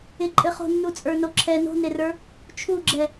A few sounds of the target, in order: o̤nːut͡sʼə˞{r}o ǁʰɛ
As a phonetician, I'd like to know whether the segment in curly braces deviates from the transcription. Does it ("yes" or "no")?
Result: yes